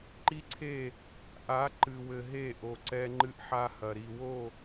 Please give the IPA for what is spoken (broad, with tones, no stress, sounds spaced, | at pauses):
ǃ i˦ ǀʰ e˦˨ | ʔ a˨˦ ǃ ɨ˨ w ɘ˨ ɦ e˦˨ ʔ o˨ ǀ ɛ˦ ŋ͡ǃ ɨ˦ ʔ ħ a˦ h ɐ˨ ɾ i˨ w o˦˨